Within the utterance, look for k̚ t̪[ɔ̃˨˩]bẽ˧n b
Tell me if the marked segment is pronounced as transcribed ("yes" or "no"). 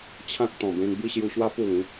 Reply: yes